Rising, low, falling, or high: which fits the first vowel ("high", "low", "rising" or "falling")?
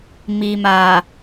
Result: low